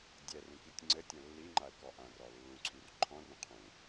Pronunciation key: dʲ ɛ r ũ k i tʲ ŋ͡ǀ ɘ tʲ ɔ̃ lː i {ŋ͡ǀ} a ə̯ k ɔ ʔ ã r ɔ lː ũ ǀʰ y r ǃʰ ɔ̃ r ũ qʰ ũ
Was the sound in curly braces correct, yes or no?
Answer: no